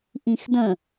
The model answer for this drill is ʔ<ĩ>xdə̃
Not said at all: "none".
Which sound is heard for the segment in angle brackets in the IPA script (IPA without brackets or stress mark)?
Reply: ĩ